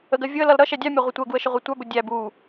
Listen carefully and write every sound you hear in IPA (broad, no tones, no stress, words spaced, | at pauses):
əɡɜ vʲʊə̯ lʌlɾʌʃɛ dʲɑmʲɒ ʁʷətʷɜɡuə̯ ʃəʁʷɛtʷɑbʊ dʲæb u